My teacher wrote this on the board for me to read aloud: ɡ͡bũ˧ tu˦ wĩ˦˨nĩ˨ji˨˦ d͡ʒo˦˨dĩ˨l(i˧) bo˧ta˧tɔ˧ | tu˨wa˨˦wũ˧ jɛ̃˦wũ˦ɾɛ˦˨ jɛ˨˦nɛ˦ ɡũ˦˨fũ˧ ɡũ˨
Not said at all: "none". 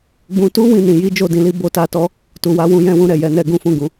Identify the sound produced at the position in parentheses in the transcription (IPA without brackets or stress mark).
i˧